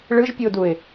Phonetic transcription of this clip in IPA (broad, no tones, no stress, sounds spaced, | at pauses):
ɭ ɯ ʒ pʲ ɯ ʊ̯ d u ɪ̯